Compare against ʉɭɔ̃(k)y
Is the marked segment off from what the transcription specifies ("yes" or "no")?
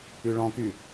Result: no